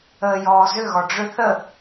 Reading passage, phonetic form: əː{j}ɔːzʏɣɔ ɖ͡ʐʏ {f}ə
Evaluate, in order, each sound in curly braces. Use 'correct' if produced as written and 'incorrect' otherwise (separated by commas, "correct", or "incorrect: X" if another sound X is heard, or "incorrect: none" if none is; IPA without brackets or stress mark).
correct, incorrect: θ